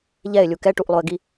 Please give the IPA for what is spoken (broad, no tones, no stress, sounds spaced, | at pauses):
ʎ ɛ ɪ̯ lʲ u k ɛ ʈ u ʔ lˠ o ə̯ ɡ i